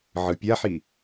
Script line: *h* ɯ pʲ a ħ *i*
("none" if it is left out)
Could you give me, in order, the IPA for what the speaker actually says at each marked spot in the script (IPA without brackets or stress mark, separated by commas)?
ʕ, i